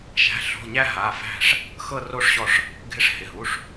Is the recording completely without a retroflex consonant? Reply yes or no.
no